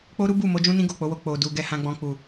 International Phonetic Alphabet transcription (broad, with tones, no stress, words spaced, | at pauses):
k͡po˦ɾu˦bu˦˨ mo˧d͡ʒũ˦nĩ˦ ɡo˦˨k͡po˨˦wo˧ k͡po˨du˨ ɡɛ˧hã˧ ɡ͡bɔ̃˧k͡pu˨